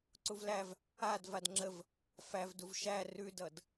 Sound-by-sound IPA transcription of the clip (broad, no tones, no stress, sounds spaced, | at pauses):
ǀ u v l æ v | a d v a d ŋ͡ǁ ə v | f æ v d u v ʃ æ r ʉ d ʌ d